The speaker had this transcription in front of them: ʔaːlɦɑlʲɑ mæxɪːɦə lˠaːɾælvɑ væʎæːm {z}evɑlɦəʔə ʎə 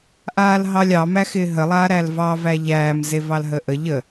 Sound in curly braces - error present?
no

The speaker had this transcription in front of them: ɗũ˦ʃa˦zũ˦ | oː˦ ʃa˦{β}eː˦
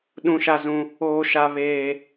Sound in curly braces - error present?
no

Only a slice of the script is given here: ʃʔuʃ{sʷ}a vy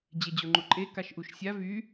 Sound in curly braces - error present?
yes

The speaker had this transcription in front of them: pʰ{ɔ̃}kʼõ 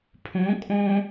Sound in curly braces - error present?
yes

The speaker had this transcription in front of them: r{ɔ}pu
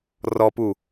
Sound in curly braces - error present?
no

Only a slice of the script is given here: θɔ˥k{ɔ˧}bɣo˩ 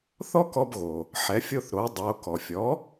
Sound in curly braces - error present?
no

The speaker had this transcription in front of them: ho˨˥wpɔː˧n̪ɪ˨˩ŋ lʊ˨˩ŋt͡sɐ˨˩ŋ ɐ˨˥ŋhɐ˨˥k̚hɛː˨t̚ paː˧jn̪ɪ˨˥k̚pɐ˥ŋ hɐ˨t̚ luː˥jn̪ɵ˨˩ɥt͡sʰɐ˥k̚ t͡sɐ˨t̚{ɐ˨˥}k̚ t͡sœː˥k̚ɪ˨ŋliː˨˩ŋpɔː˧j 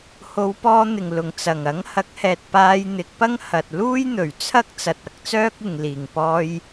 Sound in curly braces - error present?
yes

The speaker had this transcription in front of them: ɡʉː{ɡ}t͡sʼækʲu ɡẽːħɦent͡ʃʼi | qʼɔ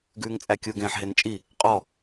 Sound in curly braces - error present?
yes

